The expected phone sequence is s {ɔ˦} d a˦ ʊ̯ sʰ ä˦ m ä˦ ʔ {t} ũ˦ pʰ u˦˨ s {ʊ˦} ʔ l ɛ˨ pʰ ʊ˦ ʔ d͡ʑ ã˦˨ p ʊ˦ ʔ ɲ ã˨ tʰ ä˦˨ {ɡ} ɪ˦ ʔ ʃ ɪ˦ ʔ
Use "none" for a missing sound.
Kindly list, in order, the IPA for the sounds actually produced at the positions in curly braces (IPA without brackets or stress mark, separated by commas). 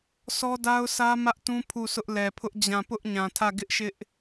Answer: ɔ˦, t, ʊ˦, ɡ